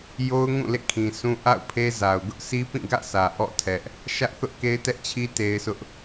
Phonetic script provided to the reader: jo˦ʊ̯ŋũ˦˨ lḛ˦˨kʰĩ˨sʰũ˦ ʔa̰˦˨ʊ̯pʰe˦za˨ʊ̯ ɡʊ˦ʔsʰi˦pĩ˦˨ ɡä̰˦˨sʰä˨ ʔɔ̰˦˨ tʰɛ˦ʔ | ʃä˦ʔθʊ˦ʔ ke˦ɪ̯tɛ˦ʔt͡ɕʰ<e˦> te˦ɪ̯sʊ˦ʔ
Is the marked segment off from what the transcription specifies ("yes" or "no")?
yes